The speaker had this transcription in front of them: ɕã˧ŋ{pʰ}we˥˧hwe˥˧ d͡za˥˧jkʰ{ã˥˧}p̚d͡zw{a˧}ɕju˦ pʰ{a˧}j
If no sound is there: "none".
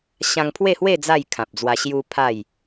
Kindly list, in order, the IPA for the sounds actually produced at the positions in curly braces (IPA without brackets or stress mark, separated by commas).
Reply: pʰ, ã˨, a˧, a˥˧